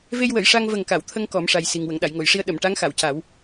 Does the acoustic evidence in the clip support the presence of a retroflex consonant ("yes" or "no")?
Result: yes